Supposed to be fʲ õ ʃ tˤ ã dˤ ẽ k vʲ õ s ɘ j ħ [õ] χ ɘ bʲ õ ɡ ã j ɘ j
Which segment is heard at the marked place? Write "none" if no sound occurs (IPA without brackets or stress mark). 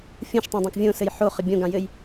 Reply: o